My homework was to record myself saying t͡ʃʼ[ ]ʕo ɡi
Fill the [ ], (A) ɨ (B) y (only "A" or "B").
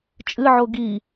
A